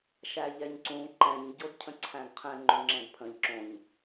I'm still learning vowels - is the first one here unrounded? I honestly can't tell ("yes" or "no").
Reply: yes